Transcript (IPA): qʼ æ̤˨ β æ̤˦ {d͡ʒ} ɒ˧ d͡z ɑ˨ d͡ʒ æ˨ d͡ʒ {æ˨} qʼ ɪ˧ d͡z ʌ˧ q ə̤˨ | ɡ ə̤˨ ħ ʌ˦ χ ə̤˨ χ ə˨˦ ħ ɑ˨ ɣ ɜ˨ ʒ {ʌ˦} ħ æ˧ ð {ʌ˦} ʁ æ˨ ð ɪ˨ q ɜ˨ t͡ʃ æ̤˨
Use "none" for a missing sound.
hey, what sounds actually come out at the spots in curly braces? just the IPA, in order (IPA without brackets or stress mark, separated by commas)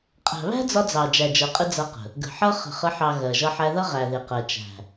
d͡z, ɜ˨, ʌ˦, ʌ˦